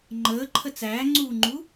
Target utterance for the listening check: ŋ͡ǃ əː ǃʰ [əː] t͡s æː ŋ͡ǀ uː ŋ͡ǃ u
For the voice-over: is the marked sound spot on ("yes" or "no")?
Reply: no